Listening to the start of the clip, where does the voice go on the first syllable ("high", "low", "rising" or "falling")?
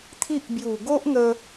high